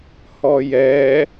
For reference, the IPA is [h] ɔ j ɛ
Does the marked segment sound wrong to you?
no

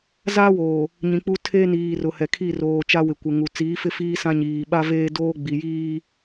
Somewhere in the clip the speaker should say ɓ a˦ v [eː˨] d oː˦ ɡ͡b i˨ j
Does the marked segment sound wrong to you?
yes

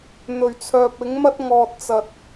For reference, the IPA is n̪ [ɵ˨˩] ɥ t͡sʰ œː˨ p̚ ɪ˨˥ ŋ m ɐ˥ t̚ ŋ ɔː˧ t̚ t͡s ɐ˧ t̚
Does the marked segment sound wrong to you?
no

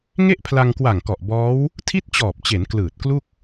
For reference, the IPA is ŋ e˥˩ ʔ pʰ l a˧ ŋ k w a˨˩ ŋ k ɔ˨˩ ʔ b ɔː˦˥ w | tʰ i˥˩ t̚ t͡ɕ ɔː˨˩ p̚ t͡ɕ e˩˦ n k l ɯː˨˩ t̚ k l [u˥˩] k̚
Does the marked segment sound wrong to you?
no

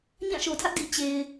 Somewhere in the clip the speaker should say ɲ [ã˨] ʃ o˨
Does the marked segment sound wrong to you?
yes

